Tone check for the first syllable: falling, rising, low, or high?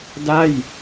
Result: falling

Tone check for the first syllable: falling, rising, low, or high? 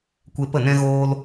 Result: high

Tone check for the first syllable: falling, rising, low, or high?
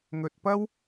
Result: low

